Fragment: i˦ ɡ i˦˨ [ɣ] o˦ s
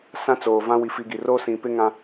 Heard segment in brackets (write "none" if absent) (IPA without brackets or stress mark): r